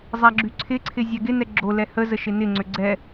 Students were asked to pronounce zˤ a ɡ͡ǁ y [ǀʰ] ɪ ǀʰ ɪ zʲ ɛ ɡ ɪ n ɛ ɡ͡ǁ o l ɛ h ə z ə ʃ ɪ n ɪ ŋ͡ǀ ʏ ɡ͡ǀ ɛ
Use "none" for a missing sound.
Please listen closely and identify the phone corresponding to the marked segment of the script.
ǀʰ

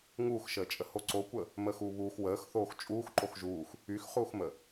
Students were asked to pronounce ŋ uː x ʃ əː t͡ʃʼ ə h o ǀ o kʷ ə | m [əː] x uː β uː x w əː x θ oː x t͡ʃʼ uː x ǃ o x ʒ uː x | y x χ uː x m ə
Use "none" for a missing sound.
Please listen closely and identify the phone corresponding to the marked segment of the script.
əː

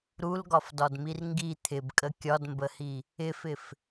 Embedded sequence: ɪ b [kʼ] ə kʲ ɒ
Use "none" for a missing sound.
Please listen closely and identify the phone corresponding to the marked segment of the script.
kʼ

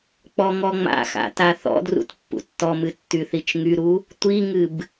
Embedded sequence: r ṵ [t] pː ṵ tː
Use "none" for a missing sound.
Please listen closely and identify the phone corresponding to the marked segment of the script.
t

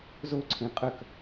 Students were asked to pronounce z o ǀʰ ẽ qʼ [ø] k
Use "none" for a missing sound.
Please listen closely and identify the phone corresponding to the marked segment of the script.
œ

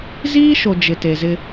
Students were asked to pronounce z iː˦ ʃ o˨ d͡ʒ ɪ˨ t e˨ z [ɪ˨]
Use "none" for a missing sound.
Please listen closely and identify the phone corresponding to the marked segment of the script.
ɪ˦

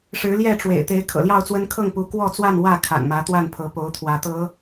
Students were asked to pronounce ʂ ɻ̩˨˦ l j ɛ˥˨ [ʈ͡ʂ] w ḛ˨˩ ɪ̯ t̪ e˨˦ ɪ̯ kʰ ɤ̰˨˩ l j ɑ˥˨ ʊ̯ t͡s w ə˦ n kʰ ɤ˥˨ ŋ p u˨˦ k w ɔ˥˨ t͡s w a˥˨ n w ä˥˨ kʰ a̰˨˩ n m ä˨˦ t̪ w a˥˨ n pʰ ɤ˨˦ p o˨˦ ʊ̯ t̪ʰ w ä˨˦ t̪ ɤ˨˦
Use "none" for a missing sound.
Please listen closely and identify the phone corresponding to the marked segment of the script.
ʈ͡ʂ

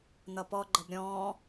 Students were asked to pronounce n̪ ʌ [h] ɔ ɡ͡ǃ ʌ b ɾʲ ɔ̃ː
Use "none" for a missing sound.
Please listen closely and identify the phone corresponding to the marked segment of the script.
p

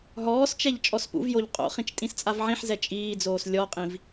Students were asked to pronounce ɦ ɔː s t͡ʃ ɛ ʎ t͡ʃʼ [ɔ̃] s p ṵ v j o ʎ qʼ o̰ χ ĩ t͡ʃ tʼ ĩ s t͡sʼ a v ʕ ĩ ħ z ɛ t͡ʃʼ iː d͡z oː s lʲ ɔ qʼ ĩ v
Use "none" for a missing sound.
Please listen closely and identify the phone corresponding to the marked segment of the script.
ɔ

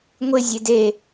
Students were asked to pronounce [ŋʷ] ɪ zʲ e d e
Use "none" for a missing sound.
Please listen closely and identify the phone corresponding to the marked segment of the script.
ŋʷ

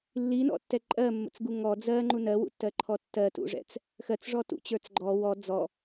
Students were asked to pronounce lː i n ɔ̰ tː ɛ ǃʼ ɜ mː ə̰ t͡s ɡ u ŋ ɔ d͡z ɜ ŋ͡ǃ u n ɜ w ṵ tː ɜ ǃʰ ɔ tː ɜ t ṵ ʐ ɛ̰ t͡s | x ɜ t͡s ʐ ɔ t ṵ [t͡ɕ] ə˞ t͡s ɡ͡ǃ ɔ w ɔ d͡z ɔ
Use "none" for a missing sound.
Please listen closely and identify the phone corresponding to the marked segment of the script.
t͡ɕ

